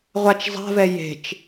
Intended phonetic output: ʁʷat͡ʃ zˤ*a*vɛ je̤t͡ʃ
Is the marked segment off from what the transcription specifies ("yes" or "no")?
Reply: yes